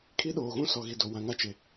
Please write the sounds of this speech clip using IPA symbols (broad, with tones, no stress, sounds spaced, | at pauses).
kʰ i˦ ɗ oː˨ ɣ ũ˦ s ɔ˨ ɣ i˨ d o˨ w ã˨ ŋ a˦ t͡ʃ e˨